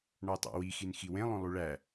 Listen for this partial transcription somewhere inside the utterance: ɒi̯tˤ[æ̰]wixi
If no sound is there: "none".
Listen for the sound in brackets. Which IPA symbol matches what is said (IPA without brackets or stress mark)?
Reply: æ̰